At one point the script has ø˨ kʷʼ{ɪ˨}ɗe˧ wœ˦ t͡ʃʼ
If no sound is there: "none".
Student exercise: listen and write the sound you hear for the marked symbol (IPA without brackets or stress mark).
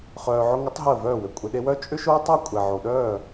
ɪ˨